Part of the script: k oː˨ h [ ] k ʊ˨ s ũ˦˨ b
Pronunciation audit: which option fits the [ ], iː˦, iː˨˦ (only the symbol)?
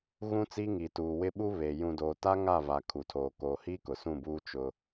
iː˦